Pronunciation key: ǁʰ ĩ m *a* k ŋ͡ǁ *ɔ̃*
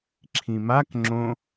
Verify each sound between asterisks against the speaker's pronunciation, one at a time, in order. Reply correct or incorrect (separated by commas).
correct, incorrect